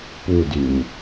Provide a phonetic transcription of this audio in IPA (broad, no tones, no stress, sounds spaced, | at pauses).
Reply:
p u d y ɲ